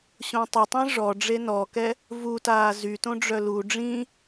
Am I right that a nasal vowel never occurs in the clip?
no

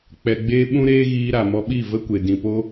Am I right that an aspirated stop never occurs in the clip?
yes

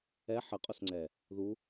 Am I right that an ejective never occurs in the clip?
no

